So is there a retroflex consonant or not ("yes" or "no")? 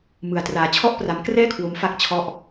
no